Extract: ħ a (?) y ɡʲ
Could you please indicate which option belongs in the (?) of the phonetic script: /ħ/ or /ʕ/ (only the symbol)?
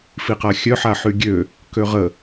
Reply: ħ